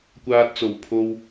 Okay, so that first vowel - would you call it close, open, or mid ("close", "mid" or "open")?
open